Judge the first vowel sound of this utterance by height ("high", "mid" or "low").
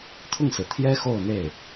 high